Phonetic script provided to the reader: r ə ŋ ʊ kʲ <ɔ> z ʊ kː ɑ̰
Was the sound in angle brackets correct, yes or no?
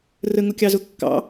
no